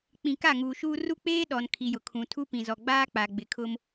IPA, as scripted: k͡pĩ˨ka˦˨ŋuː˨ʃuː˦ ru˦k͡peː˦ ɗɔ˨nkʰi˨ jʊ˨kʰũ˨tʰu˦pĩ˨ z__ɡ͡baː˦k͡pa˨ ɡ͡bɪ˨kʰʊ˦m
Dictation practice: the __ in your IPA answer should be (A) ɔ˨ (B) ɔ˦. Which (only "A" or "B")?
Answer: A